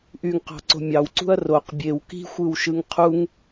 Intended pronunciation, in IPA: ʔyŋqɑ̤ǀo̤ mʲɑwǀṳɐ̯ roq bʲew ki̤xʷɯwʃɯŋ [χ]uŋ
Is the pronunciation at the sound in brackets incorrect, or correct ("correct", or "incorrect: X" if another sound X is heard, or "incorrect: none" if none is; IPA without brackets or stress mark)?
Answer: incorrect: qʰ